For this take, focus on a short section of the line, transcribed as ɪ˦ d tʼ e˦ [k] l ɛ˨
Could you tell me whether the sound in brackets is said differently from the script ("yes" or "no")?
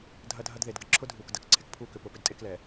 no